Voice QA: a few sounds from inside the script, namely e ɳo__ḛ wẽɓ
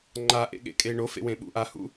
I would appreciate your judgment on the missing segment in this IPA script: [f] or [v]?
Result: f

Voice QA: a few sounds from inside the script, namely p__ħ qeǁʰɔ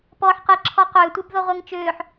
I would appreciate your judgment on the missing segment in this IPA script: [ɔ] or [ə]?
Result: ɔ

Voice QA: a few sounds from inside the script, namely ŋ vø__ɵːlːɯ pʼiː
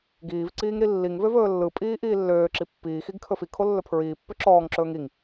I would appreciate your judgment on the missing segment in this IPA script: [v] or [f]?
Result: v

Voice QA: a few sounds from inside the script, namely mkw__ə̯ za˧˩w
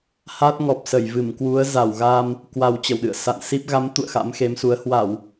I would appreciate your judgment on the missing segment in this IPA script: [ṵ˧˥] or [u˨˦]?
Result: u˨˦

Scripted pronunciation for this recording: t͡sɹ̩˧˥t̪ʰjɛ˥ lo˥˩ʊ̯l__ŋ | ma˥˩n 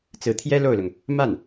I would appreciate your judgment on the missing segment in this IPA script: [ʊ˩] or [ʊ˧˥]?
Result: ʊ˩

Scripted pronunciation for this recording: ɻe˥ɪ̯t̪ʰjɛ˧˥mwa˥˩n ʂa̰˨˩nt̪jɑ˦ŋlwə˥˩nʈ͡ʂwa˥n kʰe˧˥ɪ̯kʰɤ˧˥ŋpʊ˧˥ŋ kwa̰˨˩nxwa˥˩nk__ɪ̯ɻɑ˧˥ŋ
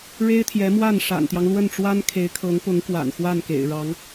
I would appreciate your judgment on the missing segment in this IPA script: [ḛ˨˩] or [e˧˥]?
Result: ḛ˨˩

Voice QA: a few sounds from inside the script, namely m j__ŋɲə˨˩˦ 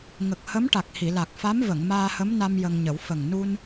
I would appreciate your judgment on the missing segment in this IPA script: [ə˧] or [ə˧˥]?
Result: ə˧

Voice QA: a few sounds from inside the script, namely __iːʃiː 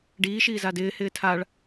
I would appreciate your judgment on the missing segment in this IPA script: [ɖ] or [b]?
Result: ɖ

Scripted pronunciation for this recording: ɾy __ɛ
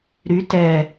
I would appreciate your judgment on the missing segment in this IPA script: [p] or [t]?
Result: t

